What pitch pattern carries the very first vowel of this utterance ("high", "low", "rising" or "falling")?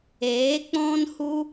rising